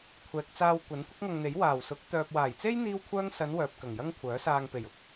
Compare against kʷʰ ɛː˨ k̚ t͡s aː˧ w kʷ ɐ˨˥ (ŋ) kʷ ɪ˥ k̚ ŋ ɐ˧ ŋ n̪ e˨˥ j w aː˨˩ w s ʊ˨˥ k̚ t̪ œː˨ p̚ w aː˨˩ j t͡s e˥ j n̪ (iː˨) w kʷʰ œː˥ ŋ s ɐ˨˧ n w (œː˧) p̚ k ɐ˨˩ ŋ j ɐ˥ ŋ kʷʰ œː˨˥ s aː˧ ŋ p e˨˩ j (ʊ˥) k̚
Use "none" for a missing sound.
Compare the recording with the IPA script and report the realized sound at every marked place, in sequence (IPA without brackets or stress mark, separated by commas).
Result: n, iː˥, œː˨, ʊ˥